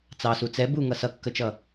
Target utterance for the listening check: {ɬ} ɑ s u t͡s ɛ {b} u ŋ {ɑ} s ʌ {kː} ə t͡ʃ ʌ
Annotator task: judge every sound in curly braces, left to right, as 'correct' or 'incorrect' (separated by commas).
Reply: incorrect, correct, incorrect, correct